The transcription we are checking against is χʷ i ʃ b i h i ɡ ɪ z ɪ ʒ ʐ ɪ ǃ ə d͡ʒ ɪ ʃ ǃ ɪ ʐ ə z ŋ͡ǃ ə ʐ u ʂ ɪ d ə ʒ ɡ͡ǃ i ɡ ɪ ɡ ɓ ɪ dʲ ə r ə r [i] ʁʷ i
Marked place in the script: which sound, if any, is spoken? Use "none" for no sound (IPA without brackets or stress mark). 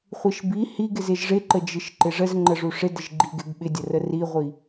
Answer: i